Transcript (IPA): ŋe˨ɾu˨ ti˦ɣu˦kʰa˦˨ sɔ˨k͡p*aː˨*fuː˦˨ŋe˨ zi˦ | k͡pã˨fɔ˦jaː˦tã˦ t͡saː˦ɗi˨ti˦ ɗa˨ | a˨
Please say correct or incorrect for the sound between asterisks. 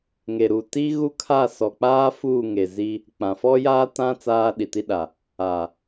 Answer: incorrect